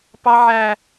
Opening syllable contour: high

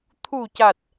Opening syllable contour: low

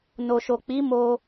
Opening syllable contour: low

